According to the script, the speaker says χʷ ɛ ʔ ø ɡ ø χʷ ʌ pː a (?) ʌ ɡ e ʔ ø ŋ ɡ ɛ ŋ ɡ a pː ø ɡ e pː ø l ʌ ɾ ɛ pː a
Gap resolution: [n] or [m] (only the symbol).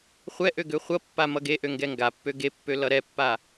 m